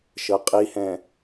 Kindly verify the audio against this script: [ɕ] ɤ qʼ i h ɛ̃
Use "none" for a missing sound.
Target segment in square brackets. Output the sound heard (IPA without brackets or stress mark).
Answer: ʃ